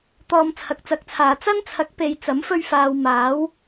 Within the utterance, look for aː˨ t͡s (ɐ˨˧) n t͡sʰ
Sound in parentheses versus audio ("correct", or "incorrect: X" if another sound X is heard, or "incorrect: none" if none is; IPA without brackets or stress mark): incorrect: ɐ˥